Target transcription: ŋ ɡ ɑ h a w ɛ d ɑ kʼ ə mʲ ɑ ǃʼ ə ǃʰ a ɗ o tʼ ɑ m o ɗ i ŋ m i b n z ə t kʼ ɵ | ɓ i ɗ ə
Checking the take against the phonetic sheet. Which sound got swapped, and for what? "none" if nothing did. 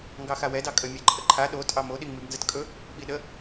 h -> x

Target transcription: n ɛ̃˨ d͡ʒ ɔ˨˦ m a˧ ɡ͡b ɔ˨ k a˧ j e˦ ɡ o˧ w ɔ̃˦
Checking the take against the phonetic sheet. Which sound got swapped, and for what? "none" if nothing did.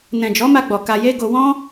none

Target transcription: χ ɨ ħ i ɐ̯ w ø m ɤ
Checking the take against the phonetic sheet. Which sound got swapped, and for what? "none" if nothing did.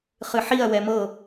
ø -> ɛ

